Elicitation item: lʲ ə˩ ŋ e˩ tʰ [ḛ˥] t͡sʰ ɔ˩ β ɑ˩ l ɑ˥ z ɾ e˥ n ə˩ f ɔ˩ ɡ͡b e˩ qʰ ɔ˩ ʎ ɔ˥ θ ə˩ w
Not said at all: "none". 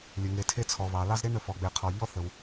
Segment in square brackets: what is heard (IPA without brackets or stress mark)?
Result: e˥